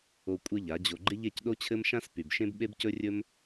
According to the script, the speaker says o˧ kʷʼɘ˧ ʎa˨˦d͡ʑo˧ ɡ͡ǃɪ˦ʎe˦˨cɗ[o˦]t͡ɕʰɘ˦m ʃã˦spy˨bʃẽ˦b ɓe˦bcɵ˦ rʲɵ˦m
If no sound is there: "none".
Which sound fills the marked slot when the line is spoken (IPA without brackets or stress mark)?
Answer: o˦